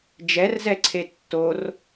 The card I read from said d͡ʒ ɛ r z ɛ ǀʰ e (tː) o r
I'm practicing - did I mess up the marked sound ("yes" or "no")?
no